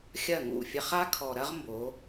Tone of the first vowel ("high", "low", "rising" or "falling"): falling